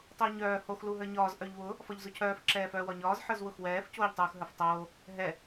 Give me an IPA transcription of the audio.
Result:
tˤʊːɲœː hox luɦə˞ɲɒːz ʔœʎwʊ | fɒʎzʊcʰœːf ǁɛːfœːwɒɲɒːz ħə˞zwʊxwɛːf coːʎtˤuːxɦə˞ftˤoː | ɦɛ

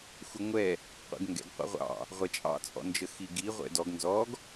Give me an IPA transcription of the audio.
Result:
xʷəŋʷɛ | qʷɛ̰ɡŋɡɛ̰ɡ qʷɑ̰ʁʷɑ̰ | ʁʷɛt͡ʃʼɑ̰ t͡sʼɔ̰nd͡ʒəxiɡi ʁʷɛ̰dɔɡ nzɔɡ

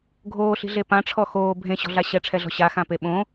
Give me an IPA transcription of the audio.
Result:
ɡʱoːɬi̤ɮe pãʈ͡ʂʰɔ xoː bʱẽɕɔ̤ɮa ɕɛʈ͡ʂʰɛɮɔ̤ ɕaxãpe ɓõ

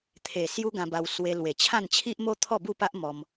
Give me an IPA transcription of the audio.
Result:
t̪ʰe˨˩ sju˦ɡã˧ba˧w swe˧ lwe˨˩t͡ɕʰã˥˧n t͡ɕʰi˦ʔ mo˦t̪ʰɔ˥˧bu˥˧pa˦ʔ mɔ˧m

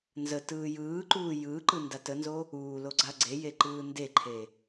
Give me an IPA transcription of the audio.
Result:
nzə tɯːjɯːǃuː jɯǃɯ ndatənzo | uː loɡ͡ǀaɡ͡ǀeje ǃɯːndeǃʰe

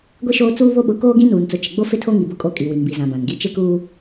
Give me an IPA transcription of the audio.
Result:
ɡʷi˦ʃoː˦ t͡suː˦βo˦ɓʊ˨˦ koː˦ɡĩ˦nuː˨n t͡sʊ˨t͡ʃɪ˨ɡ͡bo˦ fɪ˦tʰo˦ ŋi˨bʊ˦kʼo˦˨ kʼi˨wi˨nbi˨ zã˨bã˨nɡi˦ t͡ʃɪ˦kuː˦

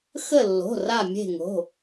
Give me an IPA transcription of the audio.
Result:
xə˦˨lːo̤˩˧˩ ra˦˨ mʲe̤˦˨ŋo̤˩˧˩

